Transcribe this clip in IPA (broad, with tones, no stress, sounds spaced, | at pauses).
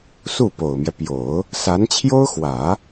s u˥˩ p o˨˩ ʊ̯ m j ɛ˦ p j o˨˩˦ ʊ̯ | s a˧˥ n t͡ɕʰ j o˥ ʊ̯ x w ä˨˩˦